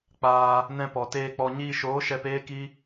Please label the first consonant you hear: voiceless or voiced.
voiceless